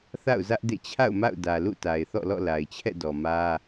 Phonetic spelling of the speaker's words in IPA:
θ a̰˦˨ ʊ̯ z ä˦ ʔ d ḛ˦˨ t͡ɕʰ a̰˦˨ ʊ̯ m a̰˦˨ ʊ̯ d ä˨ l ṵ˦˨ t a˨ ɪ̯ θ ɔ̰˦˨ l ɔ̰˦˨ l a˨ ɪ̯ t͡ɕʰ ɛ̰˦˨ d ɔ˨ m ä˦

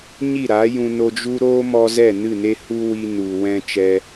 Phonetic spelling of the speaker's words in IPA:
ɲ i˦˨ ɾ a˨˦ j ũ˧ n o˧ d͡ʒ u˦ ɾ oː˦ m ɔ˧ z ɛ˦˨ n ɨ˦˨ n e˦ h u˦ w i˧ n u˨ w ɛ̃˧ t͡ʃ ɛ˧

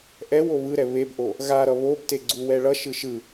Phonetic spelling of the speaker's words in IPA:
ʔ ɛ w o β ɯ ɾ ɛ β e b ʔ o | ɣ a ɾ ʌ β o b t e ɡ͡ǀ u w ɛ ɭ ʌ ʃ ɯ ʃ ɯ

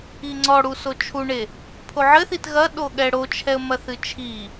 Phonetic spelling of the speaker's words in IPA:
i ŋ͡ǀ ɔ ɽ u s o t͡ʃʰ u ɳ e | pʰ o ʕ ɘ θ i t ɣ ɐ ɗ o ɠ ɛ ɽ o t͡ʃʰ ɛ ə̯ m ɐ θ ɨ t͡ʃʰ i

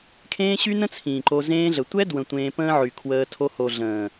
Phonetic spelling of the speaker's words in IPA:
kʰ ẽː˦ ɕ y˦ n ə̃˦ t͡sʰ ĩː˨ ǃ o˧ z ẽː˦ ɮ ə˨ tʷ ɛ˦ d w ə̃˨ tʷ ẽː˧ p ə̃ː˦ ʕ y˨ kʰ w əː˧ tʰ o˧ h o˨ ɮ ə̃ː˨

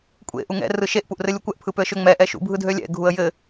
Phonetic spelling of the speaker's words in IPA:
kʷʼ ḛ ʔ u ŋ ɛ̰ r ɯ ʃ e ʔ p u ʔ r ɘ lʲ u kʷ ɛ ʔ pʰ ɯ p ø ə̯ ʃ ø ŋ͡m ɛ ʔ ɛ ʃ ṵ bʱ ɯ dʱ ø lʲ ɛ̰ ɡʱ u ə̯ j ɘ

